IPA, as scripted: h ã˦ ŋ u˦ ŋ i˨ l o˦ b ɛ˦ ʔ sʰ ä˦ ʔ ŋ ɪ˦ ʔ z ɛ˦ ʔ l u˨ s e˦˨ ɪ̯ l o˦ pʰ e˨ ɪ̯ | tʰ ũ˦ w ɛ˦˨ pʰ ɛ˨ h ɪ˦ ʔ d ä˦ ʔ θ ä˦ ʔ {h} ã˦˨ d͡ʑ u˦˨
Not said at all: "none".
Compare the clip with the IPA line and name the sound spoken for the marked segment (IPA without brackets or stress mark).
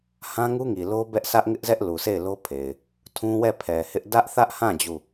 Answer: h